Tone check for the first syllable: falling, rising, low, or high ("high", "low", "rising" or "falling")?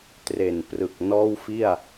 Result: low